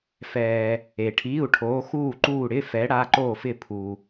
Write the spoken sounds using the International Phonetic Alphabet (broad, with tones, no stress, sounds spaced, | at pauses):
f ɛː˩ | e˩ ʈʰ iː˩˧˩ u̯ ʈʰ oː˩˧ x uː˧˩ ǃ uː˧˩ ɽ ɪ˩˧˩ f ɛ˩˧ ɽ a˩˧˩ ǃ oː˧˩ f ɪ˧˩ pʰ u˩